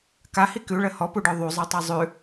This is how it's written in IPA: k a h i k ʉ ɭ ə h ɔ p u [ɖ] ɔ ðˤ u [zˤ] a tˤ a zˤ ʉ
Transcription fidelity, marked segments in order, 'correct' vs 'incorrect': correct, correct

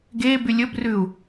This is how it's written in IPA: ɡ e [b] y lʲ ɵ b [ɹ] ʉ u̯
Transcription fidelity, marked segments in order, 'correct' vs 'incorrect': correct, incorrect: r

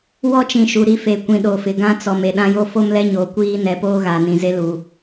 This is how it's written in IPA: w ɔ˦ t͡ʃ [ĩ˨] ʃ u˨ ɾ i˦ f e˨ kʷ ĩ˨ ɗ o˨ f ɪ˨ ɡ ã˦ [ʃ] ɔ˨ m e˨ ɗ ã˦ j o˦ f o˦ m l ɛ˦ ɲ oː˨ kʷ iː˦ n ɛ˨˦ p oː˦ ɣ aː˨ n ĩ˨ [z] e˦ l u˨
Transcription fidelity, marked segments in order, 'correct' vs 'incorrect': correct, incorrect: t͡s, correct

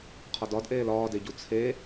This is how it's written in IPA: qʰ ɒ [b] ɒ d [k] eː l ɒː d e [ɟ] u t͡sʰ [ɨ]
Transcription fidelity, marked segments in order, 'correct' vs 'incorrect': incorrect: d, incorrect: ʔ, correct, incorrect: e

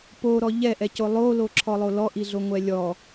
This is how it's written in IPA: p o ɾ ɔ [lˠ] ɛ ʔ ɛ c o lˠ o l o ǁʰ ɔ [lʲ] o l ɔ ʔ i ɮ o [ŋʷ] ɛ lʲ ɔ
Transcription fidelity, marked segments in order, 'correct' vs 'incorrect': incorrect: ʎ, incorrect: lˠ, correct

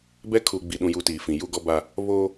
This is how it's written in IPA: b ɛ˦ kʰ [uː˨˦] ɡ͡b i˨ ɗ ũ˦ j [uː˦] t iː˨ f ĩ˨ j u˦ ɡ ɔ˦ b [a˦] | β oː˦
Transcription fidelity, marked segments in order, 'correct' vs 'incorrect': incorrect: uː˨, incorrect: u˦, correct

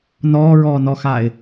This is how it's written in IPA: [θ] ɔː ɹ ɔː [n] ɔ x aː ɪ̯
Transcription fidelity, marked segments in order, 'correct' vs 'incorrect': incorrect: n, correct

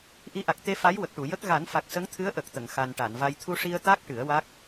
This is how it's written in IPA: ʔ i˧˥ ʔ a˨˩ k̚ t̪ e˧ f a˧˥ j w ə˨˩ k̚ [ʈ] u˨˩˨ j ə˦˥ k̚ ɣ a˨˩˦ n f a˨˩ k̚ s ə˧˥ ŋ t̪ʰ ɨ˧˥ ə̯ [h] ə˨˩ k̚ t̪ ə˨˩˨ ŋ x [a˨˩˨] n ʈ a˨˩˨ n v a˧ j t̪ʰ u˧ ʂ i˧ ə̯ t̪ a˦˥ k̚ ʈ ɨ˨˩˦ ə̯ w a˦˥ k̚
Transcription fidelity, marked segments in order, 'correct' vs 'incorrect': correct, incorrect: ʔ, incorrect: a˨˩

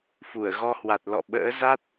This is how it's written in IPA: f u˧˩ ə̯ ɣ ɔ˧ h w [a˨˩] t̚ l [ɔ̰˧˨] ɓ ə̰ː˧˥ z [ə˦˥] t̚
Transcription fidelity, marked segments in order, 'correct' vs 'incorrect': correct, correct, incorrect: a˦˥

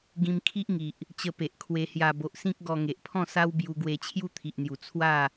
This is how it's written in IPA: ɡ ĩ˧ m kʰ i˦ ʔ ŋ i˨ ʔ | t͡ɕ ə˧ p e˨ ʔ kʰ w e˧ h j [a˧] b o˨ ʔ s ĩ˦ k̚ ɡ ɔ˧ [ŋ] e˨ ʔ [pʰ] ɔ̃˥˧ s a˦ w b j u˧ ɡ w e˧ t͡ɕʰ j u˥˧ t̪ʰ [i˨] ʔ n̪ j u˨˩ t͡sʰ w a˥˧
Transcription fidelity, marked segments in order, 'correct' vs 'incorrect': correct, correct, correct, correct

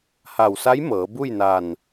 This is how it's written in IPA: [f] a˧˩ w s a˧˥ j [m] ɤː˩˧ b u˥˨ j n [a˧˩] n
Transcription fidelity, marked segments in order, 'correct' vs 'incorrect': incorrect: h, correct, incorrect: aː˧˩

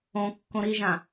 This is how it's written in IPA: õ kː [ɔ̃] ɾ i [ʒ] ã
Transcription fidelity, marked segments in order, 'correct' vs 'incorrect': incorrect: õ, correct

